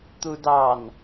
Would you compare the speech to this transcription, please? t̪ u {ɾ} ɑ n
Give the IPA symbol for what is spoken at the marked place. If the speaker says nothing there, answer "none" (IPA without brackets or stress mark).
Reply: d